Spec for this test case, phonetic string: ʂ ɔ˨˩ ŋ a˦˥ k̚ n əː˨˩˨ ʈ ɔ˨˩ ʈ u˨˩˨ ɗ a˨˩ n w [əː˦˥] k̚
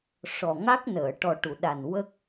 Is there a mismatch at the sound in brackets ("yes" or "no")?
yes